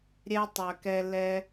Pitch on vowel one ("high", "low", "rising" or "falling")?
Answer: high